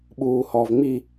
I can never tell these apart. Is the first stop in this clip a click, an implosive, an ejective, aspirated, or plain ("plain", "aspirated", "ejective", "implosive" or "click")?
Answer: implosive